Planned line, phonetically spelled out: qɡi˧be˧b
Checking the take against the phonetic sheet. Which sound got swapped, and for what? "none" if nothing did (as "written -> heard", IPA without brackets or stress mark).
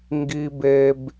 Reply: q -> ŋ